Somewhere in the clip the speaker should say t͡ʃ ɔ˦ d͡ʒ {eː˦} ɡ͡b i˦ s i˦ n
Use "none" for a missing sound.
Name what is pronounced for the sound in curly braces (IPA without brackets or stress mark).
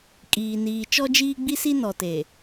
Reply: iː˦